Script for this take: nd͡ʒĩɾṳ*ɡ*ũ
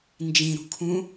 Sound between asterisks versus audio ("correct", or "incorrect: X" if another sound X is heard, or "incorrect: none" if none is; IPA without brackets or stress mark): incorrect: kʰ